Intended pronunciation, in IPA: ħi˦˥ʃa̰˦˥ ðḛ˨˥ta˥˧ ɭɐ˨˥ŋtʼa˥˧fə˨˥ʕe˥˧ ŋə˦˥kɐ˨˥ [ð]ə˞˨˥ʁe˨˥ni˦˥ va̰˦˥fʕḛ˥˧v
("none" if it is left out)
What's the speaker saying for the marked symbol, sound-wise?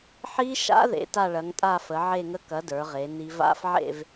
d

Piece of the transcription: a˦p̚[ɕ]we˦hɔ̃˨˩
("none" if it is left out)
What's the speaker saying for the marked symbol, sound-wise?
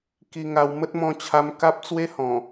t͡s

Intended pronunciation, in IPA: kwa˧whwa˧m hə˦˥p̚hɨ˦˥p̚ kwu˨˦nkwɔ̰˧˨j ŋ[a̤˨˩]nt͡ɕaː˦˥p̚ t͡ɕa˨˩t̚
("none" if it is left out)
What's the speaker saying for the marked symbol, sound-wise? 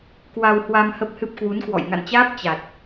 a̰˧˨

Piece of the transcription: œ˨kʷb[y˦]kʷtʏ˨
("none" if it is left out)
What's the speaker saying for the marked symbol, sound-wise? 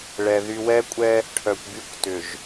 y˦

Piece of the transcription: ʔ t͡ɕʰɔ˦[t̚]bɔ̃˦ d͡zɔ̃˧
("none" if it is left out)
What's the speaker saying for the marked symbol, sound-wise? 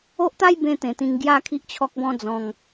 k̚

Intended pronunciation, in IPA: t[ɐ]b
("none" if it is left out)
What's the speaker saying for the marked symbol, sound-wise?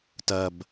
ɐ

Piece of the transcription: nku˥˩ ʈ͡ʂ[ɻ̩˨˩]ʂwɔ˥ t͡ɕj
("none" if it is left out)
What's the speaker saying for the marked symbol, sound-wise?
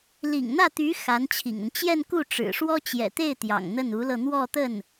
ɻ̩˨˩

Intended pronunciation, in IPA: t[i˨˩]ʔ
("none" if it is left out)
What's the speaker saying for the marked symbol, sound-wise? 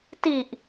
i˨˩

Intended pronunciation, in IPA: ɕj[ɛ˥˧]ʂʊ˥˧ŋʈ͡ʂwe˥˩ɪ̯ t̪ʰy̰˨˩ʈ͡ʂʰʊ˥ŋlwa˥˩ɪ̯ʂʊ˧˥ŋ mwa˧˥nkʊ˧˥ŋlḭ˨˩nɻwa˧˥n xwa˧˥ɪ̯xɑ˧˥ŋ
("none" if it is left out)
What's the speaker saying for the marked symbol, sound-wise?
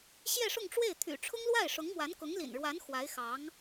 ɛ˥˧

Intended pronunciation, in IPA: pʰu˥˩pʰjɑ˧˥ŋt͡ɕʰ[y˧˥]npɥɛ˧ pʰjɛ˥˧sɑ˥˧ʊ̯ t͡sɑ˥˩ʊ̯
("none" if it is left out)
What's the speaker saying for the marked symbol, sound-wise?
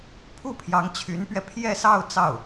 y˧˥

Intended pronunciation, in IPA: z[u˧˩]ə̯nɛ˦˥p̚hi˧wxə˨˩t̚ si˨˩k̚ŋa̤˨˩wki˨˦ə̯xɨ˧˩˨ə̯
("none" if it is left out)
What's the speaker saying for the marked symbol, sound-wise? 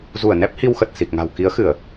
u˧˩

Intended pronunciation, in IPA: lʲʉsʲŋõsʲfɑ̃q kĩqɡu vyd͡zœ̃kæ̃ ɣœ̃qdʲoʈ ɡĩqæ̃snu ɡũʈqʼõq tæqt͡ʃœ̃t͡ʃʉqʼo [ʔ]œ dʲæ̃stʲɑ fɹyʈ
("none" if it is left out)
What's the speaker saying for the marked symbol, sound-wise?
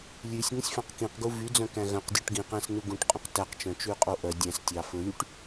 ʔ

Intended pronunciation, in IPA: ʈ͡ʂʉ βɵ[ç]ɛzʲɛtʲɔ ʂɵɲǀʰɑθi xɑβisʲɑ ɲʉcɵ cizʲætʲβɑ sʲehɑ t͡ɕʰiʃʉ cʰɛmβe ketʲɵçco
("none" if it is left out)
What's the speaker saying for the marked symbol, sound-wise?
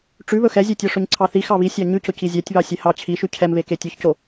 x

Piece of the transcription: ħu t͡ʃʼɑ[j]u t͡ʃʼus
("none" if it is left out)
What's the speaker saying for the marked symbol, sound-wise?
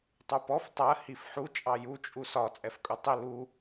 j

